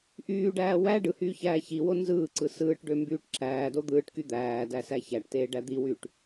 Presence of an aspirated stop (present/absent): absent